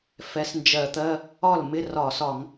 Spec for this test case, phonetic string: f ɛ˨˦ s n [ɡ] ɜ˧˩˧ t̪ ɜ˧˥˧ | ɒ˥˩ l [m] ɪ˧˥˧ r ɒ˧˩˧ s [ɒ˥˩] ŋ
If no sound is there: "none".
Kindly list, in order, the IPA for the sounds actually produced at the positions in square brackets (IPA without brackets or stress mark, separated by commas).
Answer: d͡ʒ, m, ɒ˧˩˧